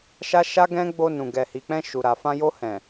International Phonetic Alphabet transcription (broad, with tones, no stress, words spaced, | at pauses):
ʃa˦ʃa˦ɡɛ̃˦ ɡ͡bo˧nũ˨ ɡɛ˨hi˨k͡pɛ̃˧ ʃu˨ɾa˨ fã˧jo˧hɛ̃˨